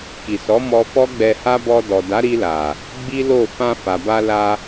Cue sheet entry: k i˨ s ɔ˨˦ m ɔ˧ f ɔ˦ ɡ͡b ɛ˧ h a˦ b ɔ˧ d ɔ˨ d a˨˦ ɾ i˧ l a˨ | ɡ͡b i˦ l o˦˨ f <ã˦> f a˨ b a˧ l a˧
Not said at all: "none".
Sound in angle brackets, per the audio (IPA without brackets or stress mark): ã˧